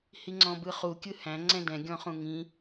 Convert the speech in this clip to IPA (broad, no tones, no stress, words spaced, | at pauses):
hiŋ͡ǀɔ̃bɯχu kʲɯhæ̃ ŋ͡ǀɛ̃dɛ̃ ɡʲɔ̃χũŋĩ